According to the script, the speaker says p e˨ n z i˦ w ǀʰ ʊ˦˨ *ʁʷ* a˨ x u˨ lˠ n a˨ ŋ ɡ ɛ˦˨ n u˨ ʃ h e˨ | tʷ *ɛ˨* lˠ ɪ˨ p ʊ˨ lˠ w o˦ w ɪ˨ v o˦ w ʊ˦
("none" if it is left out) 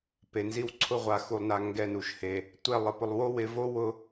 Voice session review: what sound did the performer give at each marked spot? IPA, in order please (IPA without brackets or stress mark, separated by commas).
ʁʷ, ɛ˦˨